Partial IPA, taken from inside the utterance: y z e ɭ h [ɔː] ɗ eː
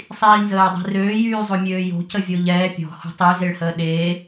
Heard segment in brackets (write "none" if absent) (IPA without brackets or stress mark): əː